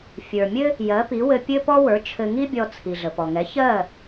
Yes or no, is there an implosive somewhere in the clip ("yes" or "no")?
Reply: no